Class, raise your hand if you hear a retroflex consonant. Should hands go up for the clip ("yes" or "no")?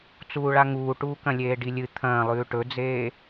yes